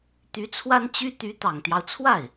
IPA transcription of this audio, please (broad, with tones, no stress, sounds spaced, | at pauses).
t̪ y˧˥ t͡sʰ w a˥ n t͡ɕ y˥ t̪ y˧˥ t̪ ɑ˨˩ ŋ t̪ j ɑ˦ ʊ̯ t͡sʰ w a˥˩ ɪ̯